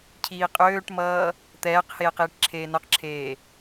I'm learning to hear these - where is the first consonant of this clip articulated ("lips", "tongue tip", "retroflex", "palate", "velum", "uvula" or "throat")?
palate